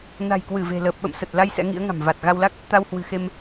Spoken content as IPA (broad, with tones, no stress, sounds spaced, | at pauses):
n a̤˨˩ j k w ɨ˧˩ v e̤˨˩ l əː˨˩ p̚ ɓ ə̰˧˨ m s ə˨˩ t̚ l a˧ j s ɛ̰˧˥ ŋ ḭ˧˥ ə̯ ŋ a̤˨˩ m v a˨˩ t̚ ɣ a˧ w l a˦˥ k̚ | t̪ a˧ w h w ɨ̤˨˩ x e˧ m